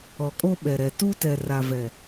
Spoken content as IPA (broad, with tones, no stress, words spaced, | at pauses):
ɔ˨kʼo˦ɓɛ˨ɾɛ˨ tu˦tɛ˨ ra˨vɛ˨